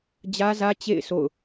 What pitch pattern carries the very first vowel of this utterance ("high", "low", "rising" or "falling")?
high